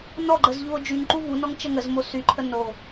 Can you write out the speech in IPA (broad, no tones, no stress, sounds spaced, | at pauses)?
n ɔ ɡ͡ǃ ə z ʎ u o̯ d͡ʒ y ŋ ǃ u v u n ɔ ŋ t͡ʃ ə ŋ ə z m o s y ǃʰ ə n o